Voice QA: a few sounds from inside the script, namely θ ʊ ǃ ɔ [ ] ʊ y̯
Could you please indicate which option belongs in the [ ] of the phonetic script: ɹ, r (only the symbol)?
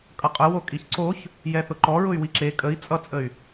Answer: ɹ